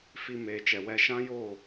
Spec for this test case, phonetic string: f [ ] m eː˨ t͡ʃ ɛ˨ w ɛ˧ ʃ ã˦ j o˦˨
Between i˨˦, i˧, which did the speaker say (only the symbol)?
i˧